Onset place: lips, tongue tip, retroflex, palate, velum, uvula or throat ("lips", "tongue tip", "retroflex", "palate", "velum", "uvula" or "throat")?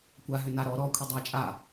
velum